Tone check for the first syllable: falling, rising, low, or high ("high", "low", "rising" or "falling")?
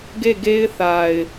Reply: falling